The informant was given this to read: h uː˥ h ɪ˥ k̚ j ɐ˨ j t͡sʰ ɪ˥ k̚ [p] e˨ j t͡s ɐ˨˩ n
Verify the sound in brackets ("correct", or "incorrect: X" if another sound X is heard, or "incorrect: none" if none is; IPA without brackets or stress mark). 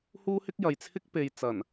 correct